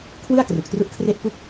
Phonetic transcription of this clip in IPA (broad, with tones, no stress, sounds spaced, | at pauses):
kʰ w ɯ˥˩ a̯ k r u˨˩ k̚ t r u˦˥ ʔ kʰ r e˥˩ ʔ p u˥˩ k̚